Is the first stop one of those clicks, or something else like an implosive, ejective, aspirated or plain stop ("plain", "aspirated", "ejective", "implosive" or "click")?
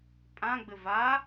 ejective